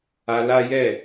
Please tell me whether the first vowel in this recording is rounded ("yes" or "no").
no